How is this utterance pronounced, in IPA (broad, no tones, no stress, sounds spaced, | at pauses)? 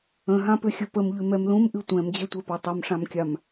ə̃ ɦ ã p ʏ xʲ ə p ə m ʎ ʉ m ɛ m l ũ m ʔ ɨ tʷ ɛ̃ m d͡ʑ ɛ tʷ ɛ p a tˤ ʌ m ʂ ã m kʲ a m